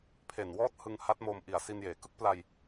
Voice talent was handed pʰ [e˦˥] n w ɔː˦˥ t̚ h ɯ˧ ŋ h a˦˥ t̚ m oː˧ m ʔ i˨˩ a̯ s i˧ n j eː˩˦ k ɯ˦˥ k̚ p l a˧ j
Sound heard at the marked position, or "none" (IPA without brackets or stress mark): e˨˩